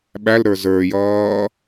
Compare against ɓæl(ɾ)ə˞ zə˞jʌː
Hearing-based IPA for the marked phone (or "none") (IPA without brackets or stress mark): ɾ